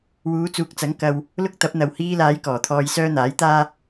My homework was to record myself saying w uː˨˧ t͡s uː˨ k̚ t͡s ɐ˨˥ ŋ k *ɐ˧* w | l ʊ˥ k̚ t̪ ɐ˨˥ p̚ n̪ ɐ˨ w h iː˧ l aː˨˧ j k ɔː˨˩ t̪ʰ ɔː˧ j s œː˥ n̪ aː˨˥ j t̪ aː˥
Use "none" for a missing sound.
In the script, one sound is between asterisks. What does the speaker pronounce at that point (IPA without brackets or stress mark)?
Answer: ɐ˧